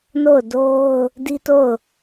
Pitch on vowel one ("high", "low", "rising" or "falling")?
falling